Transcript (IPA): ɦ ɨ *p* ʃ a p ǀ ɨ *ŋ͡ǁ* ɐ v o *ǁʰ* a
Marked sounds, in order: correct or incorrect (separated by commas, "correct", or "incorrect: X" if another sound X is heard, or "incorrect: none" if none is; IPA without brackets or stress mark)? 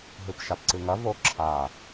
correct, incorrect: ŋ, correct